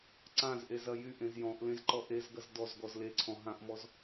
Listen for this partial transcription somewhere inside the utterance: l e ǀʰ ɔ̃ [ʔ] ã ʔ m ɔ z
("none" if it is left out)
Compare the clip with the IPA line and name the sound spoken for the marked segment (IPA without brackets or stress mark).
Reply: ɦ